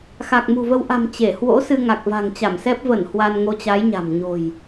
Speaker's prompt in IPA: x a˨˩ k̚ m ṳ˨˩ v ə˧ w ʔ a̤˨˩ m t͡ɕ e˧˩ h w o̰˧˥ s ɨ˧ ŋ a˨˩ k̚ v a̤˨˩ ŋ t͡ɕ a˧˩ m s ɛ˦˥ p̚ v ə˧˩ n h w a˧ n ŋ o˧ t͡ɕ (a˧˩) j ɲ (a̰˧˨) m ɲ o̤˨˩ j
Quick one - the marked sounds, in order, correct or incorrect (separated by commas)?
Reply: incorrect, incorrect